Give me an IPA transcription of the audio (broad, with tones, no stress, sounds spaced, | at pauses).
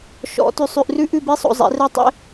ʃ ɔ̰˨˦ t ʉ˨ sˤ ʉ˨ ʔ r ʉ˦ ʔ ʉ˦˨ b i˦ sˤ o̰˨ zˤ ḛ˨˦ r ɛ˦ tˤ ḛ˦